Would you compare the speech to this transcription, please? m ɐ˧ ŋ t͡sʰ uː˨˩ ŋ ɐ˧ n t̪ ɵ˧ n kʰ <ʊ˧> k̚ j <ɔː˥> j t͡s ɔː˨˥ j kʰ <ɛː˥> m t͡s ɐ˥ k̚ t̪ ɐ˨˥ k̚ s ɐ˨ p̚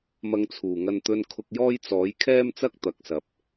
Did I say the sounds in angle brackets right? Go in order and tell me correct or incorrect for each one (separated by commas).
correct, correct, correct